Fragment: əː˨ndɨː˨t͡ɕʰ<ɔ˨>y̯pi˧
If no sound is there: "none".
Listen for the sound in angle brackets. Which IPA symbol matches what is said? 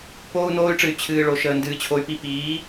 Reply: o˨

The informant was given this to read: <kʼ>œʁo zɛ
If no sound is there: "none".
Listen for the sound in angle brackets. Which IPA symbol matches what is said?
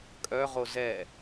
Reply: kʼ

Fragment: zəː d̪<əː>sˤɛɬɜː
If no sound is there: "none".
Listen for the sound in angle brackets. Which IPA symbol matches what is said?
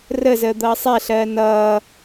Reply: ʌː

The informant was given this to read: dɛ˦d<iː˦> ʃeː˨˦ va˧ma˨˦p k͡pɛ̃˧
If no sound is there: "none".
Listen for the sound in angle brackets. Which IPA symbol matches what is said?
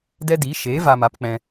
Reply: iː˨˦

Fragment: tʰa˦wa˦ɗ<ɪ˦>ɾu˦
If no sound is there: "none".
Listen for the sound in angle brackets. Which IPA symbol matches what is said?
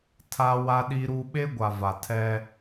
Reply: i˦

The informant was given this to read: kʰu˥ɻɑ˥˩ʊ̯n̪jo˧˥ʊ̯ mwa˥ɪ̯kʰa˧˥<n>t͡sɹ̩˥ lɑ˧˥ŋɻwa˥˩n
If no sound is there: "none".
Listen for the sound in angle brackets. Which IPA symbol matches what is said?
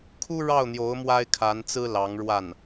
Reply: n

